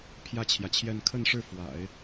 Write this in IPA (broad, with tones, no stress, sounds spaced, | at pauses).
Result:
pʰ j ä˥˩ t͡ɕʰ j ä˩ t͡ɕʰ j ɛ˥˧ n kʰ ə˥˧ n ʂ ɻ̩˥˩ f w a̰˨˩˦ ɪ̯